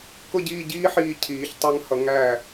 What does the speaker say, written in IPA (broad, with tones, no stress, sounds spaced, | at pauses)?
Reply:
k ʊ˥˧ ɟ iː˥˧ ɟ iː˥ ħ iː˧ cʰ iː˩˧ ç tˤ æ˧ ŋ h ʌ˩˧ ŋ æ˧˩